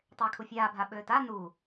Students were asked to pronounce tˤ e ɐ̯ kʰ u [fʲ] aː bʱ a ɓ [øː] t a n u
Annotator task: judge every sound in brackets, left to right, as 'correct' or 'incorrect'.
correct, correct

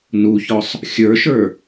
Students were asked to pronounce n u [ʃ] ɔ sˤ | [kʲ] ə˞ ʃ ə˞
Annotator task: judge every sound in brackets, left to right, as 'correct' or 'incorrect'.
incorrect: ç, incorrect: xʲ

